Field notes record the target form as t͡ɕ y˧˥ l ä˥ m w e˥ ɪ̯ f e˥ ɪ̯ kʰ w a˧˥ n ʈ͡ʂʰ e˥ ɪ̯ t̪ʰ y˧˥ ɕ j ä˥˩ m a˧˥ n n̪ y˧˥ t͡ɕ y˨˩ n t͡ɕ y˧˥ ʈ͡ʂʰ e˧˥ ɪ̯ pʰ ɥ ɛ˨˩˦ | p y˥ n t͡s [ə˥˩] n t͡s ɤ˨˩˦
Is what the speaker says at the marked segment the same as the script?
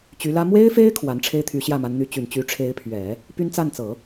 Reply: no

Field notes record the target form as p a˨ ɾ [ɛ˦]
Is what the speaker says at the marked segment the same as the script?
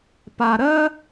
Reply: no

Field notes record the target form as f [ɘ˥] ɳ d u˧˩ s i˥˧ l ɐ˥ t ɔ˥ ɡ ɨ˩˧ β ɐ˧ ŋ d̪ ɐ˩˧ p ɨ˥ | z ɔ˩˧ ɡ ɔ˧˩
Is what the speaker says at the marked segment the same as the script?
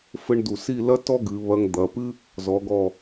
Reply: yes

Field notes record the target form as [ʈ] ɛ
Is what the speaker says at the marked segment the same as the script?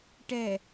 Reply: yes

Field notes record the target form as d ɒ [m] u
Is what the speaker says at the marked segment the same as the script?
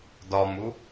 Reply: yes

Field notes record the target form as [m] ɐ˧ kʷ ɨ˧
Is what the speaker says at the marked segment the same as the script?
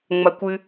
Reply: no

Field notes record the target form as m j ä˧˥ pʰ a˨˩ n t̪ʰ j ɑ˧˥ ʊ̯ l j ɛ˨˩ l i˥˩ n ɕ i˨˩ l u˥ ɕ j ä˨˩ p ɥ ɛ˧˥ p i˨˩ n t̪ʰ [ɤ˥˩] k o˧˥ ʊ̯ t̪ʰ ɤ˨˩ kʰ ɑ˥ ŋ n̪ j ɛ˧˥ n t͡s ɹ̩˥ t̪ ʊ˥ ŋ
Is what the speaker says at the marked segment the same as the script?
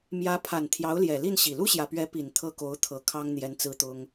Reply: yes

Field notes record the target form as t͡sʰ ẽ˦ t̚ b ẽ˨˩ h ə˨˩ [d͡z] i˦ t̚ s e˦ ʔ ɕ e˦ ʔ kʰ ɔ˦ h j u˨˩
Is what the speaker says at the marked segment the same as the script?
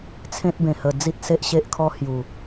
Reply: yes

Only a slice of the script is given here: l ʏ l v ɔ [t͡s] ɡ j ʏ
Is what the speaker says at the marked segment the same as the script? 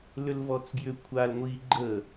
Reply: yes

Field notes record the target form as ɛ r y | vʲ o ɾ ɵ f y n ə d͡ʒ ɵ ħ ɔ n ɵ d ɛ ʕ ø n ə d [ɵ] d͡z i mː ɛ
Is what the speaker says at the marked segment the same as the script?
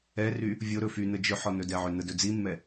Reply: yes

